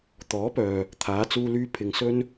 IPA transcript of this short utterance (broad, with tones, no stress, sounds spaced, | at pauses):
t̪ ɔː˨˥ p œː˨ | t̪ʰ aː˨˧ t͡s uː˧ l yː˧ pʰ ɪ˨ ŋ s ɵ˧ n